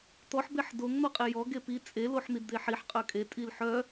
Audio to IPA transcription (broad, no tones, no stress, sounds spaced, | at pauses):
t̪ ɔ ħ b e ħ d o ŋ n̪ ɔ qʼ e j ɔ ɡ e p i t͡sʼ e l o ħ n̪ i d d̪ e ħ i ħ qʼ œ kʼ e tʼ i l ħ œ